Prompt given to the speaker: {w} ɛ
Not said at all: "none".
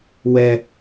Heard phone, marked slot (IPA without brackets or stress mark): w